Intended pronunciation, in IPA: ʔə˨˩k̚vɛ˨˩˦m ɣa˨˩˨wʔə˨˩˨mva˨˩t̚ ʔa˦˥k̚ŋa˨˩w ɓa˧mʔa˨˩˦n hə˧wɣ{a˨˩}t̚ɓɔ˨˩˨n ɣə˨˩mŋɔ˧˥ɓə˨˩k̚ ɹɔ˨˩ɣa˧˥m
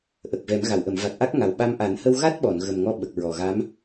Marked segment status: incorrect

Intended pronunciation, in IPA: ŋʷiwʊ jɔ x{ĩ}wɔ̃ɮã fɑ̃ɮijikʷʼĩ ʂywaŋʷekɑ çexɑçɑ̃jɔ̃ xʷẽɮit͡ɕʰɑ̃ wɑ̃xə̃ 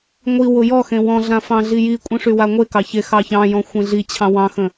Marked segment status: incorrect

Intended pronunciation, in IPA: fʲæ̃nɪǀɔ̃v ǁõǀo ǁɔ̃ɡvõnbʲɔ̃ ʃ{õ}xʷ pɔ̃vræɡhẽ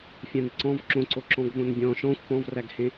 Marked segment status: incorrect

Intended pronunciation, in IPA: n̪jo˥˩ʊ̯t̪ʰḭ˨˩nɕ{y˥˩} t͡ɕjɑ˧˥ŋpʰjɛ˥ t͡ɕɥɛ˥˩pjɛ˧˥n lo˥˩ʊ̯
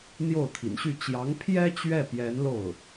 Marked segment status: correct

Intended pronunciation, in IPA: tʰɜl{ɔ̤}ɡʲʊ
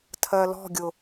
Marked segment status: correct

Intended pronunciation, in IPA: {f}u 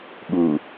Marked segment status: incorrect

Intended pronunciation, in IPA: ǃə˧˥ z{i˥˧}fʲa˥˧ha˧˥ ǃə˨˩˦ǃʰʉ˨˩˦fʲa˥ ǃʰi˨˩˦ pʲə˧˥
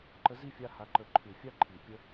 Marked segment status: correct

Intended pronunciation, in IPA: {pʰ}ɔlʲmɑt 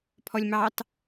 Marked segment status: correct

